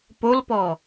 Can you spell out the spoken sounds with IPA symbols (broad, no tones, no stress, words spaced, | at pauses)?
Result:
polpɔ